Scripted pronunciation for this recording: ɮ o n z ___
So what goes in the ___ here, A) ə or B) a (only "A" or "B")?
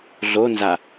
B